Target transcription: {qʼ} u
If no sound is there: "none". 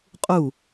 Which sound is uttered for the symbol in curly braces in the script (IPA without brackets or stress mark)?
qʼ